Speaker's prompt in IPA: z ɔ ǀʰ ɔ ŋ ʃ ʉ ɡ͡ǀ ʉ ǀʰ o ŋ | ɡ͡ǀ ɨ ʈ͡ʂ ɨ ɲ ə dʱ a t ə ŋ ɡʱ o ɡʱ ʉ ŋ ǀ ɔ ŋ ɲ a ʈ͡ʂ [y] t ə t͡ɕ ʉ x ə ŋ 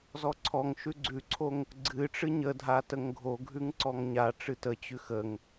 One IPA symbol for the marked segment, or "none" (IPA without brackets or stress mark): ɨ